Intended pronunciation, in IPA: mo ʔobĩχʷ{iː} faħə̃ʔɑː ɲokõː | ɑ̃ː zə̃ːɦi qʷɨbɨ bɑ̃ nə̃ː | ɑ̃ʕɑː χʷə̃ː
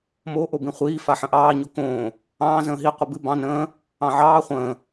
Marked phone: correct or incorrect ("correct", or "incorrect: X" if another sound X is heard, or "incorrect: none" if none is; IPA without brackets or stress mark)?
correct